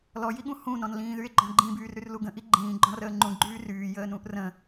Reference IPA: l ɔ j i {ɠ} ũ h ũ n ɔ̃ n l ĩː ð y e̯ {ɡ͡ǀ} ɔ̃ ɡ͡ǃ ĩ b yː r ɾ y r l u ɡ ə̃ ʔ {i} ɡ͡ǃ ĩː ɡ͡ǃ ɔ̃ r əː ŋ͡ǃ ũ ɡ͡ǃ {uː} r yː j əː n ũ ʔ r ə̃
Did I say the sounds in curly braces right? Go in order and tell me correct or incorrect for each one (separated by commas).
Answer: correct, incorrect, correct, incorrect